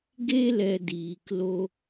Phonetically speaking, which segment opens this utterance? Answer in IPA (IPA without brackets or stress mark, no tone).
ɡ